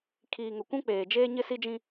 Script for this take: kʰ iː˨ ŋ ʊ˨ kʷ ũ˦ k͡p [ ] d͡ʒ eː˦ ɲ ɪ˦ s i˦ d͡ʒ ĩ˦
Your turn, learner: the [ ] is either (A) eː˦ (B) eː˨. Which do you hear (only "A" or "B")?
B